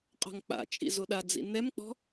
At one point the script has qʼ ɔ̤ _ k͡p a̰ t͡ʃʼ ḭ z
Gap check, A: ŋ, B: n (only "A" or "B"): A